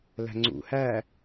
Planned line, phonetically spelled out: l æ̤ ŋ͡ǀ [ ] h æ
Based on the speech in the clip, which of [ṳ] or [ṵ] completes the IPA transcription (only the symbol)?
ṵ